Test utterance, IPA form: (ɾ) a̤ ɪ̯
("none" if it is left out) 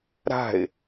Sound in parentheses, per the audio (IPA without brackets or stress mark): ɾ